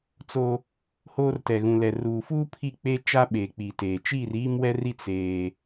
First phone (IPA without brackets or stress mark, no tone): t͡s